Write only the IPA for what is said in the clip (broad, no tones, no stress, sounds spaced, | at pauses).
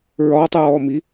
ɹ ɒː tˤ ɹ ɔː m i